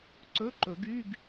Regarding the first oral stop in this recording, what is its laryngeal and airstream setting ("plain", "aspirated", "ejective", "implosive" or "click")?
click